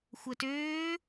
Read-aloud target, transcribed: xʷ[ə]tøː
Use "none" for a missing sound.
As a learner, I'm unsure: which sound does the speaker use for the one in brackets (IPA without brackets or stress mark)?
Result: ə